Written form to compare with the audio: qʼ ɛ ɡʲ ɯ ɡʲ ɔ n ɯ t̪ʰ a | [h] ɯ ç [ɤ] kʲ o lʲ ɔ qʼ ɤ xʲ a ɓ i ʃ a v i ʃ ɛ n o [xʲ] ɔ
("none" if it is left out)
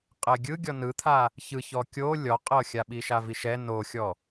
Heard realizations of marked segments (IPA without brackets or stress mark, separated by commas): ç, ɔ, xʲ